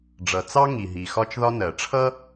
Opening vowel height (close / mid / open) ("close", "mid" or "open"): mid